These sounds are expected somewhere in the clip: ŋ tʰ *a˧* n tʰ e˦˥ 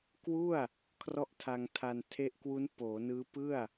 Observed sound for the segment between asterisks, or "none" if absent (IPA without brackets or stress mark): a˧